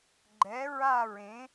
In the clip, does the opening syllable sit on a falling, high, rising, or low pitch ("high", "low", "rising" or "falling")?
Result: rising